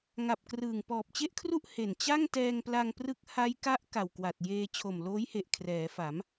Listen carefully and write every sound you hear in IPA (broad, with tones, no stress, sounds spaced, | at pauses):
ŋ a˨˩ p̚ k r ɯː˨˩ ŋ p ɔː˨˩ p̚ t͡ɕ e˥˩ ʔ kʰ r u˥˩ ʔ h e˨˩ n t͡ɕ a˥˩ ŋ t ɛː˧ ŋ p l a˧ ŋ p r ɯ˦˥ k̚ h a˦˥ j k a˦˥ ʔ k a˨˩ w k w a˨˩ t̚ j eː˧ t͡ɕʰ o˨˩ m l oː˦˥ j h e˨˩ ʔ kʰ r ɛː˩˦ f a˩˦ m